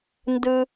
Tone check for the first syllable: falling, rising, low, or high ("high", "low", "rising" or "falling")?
high